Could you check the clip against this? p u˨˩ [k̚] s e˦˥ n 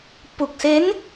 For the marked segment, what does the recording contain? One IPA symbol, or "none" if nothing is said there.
k̚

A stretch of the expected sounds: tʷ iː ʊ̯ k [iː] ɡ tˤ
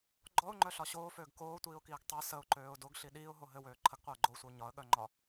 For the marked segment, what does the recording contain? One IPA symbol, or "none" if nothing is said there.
iː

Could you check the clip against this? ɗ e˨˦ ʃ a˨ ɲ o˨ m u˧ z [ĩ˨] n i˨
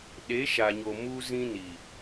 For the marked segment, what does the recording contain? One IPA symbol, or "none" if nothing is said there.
ĩ˧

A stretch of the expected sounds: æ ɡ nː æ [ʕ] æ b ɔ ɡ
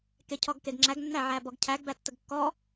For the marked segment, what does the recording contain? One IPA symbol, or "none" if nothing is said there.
ʕ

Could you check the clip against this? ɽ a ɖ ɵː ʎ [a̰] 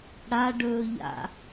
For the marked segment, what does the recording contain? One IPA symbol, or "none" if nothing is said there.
a̰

